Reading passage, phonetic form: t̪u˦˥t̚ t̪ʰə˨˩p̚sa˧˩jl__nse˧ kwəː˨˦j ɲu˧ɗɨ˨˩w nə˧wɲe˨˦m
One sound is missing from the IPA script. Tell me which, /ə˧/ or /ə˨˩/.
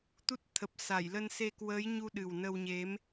ə˧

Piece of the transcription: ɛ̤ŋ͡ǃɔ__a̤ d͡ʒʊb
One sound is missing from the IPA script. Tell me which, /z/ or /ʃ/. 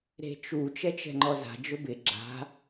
z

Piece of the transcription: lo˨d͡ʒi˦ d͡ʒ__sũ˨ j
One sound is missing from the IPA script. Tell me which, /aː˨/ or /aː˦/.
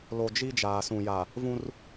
aː˨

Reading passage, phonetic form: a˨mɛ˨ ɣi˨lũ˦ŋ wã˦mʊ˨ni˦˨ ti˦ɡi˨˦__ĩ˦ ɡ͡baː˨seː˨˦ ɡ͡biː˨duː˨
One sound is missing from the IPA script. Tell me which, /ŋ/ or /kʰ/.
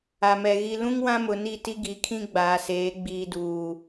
kʰ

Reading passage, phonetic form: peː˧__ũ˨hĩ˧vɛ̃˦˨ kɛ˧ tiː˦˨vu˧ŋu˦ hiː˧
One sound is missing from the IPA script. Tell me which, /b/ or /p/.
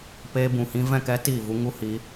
b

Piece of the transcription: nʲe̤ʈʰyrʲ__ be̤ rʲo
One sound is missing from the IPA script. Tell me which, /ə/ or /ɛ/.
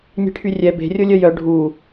ɛ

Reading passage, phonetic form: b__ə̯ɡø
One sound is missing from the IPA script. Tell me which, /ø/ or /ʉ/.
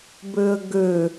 ø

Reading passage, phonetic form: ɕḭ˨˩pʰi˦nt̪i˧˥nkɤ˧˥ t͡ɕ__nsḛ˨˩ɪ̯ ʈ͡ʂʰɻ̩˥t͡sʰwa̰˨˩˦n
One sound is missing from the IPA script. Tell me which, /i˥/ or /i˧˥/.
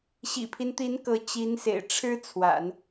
i˧˥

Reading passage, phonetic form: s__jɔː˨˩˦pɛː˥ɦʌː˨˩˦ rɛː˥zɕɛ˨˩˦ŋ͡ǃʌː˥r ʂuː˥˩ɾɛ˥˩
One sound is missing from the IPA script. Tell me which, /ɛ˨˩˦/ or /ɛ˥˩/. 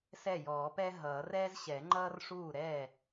ɛ˥˩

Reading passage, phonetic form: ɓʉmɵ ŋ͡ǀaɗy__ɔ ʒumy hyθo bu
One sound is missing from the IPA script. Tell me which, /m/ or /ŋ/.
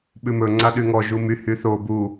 ŋ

